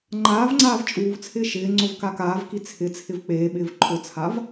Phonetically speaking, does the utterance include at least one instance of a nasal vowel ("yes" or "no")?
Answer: no